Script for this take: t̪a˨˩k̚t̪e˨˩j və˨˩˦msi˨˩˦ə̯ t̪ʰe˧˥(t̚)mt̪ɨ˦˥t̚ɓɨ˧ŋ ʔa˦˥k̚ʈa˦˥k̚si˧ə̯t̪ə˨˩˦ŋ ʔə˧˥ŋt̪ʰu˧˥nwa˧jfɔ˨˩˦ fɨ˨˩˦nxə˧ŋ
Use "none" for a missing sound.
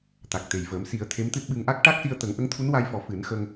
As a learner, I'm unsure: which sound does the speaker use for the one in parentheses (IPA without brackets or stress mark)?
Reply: none